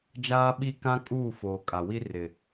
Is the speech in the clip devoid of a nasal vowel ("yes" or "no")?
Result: no